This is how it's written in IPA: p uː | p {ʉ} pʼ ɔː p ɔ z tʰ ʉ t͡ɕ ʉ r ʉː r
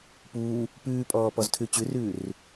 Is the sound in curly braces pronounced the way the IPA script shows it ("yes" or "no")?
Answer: no